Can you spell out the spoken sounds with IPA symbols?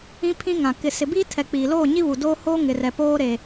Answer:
ĩ˦ pʰ ĩ˦ ŋ ã˨ k ɪ˨ s ɪ˨ b iː˦ tʰ ɛ˨ k͡p iː˨ l oː˦˨ ɲ i˦ β u˨ d oː˦ h oː˦ ŋ ɪ˨ r ɛ˨ p oː˦ ɾ e˨

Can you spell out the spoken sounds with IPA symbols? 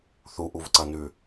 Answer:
θ u ʔ u v ǀ ɐ n ʉ

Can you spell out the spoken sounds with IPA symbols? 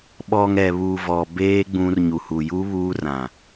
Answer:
ɓ ɔ˨ ŋ ɛ˨ β uː˨ v ɔ˨ b eː˦ ɡ͡b ũ˦ r ɲ u˨ h u˨ j u˦ β uː˦ r ã˨

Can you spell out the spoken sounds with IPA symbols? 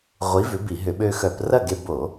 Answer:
ʁʷ i˨˥ v ʏ˨˥ b i˧˩˧ ɦ ʏ˧˩˧ ɓ ø˧ x œ˧˩˧ p r ɐ˥˨ ɡ e˧ b o˧˩˧

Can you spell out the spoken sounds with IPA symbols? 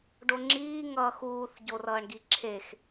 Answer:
ɖ o ŋ͡ǁ iː ŋ ʌː x uː θ ɟ o r ʌː ɳ ɡ i ǁʰ e x

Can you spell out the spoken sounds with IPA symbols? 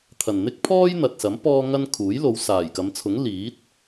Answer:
t̪ʰ ɐ˨ n n̪ ɪ˥ k̚ pʰ ɔː˥ j n̪ ɐ˨ t̚ s ɐ˨˥ m p ɔː˥ ŋ ɐ˥ n kʰ uː˨˥ j l o˨˧ w s aː˨˩ j k ɐ˨˧ m t͡sʰ ʊ˨˥ ŋ l iː˨˥ t̚

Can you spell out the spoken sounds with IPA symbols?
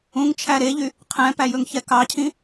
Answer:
ũ ŋ t͡ʃʰ æ ɾ e ʎ y | qʰ ɛ̃ p æ j ɵ ŋ ç ɛ k ɑ cʰ ĩ

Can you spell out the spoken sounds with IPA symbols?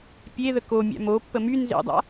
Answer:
pʲ e ð ə k o mʲ a̰ m o pː ə m y n z ḛ dˤ a̰

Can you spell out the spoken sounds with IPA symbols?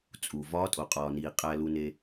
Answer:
t͡sʼ u˩ v ɒː˧˥ tʼ o˩ qʼ ɒː˩ n iː˩ qʼ æ˧ l u˧ n e˧

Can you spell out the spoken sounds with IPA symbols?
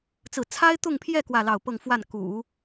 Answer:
t͡s ɹ̩˥˩ t͡sʰ a˥ ɪ̯ t̪ ʊ˥˧ ŋ pʰ j ɛ˥˧ k w ä˥˧ l ɑ˥˧ ʊ̯ p ɤ˥˧ ŋ f w a˥˩ n k ṵ˨˩˦

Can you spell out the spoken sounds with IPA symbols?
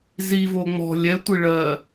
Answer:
z i v o ŋ͡m ɔ̤ lʲ ɛ tʷ i ɭ ɜ

